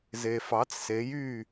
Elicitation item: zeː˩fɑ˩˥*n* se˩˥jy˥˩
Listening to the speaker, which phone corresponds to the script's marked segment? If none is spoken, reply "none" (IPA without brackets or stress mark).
t͡s